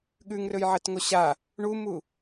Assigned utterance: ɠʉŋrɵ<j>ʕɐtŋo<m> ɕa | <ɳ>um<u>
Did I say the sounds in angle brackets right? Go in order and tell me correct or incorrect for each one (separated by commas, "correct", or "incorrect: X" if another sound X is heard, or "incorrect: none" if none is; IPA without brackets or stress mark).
correct, incorrect: none, correct, correct